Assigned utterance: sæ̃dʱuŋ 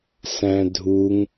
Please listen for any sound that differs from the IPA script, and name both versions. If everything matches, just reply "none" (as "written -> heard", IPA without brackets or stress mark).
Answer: none